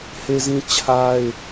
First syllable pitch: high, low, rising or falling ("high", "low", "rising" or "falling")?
high